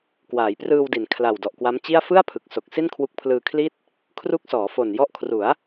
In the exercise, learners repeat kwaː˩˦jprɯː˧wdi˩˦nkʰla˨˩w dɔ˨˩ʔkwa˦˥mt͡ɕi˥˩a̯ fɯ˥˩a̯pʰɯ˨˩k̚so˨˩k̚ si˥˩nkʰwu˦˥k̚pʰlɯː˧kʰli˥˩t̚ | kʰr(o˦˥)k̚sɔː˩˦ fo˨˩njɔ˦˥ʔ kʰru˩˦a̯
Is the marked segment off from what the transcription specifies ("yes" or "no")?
yes